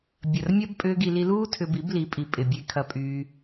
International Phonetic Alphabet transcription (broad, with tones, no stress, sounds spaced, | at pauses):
bʲ ɐ˨ r mʲ ɐ˦ b pʼ ʏː˦ ɡ i˧ l i˧ l uː˦ tʰ ʏ˧ b i˨˦ b l i˨˦ pʼ i˨ pʼ ɪ˨ bʲ e˧ kʰ ɐ˧ pʼ yː˧